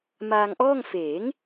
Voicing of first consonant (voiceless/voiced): voiced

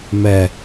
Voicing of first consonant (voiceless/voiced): voiced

